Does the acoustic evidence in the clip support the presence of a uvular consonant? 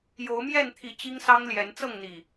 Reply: no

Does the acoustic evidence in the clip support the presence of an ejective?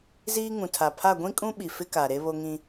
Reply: yes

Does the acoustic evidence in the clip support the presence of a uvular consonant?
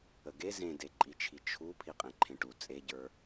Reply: yes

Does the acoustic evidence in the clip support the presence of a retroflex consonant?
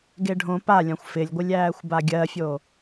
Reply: yes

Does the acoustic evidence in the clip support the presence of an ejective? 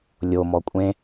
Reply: yes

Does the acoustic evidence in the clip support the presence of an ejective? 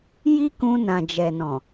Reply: no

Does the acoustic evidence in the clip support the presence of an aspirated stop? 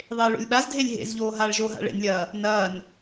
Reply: no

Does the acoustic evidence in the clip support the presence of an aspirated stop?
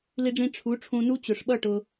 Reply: yes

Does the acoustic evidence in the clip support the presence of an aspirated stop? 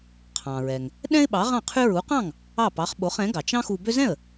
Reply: yes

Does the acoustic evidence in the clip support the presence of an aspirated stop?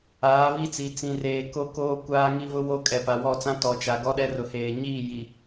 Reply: no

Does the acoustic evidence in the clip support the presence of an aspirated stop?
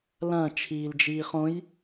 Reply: yes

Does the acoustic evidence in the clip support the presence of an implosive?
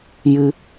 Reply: no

